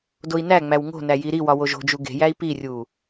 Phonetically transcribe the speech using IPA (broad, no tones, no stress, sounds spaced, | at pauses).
d o i̯ n æ ŋ͡m æ w ŋ o̤ n æ j i ɾ i w ɒ w o ʒ o̤ d͡ʒ u ɡ e̤ j æ i̯ p i rʲ u